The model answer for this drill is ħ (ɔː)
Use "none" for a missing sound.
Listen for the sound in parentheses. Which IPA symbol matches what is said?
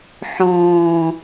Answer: ɔ̃ː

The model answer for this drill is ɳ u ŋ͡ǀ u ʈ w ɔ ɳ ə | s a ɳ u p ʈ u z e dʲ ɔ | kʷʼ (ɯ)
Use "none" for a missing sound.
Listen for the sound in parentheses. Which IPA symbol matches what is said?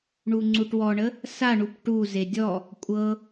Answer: ɤ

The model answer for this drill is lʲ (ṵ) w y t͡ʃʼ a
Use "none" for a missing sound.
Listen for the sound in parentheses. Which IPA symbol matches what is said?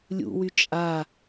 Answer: ṵ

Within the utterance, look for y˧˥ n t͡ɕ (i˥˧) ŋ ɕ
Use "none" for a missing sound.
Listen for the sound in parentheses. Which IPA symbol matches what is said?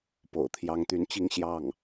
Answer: i˥˧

